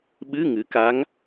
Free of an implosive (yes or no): no